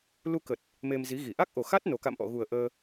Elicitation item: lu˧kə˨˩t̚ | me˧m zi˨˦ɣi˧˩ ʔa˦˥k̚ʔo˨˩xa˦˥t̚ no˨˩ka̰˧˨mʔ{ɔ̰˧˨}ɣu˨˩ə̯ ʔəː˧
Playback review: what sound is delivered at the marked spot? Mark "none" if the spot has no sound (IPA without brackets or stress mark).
ɔ̰˧˨